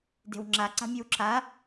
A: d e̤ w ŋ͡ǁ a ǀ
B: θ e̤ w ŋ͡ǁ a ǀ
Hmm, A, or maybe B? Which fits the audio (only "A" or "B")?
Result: A